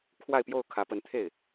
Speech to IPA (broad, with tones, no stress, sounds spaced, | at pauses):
kʰ w a˥˧ ɪ̯ p j o˥˩ ʊ̯ kʰ ä˧˥ p ə˧˥ n t̪ʰ e˥˩ ɪ̯